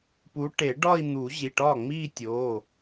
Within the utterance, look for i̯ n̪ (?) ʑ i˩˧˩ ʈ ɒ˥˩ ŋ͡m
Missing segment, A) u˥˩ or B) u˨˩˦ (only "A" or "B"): B